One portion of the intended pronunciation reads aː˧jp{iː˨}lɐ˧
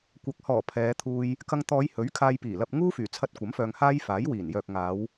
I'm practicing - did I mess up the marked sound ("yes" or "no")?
yes